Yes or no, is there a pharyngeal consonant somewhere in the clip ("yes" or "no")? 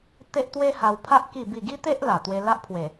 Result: no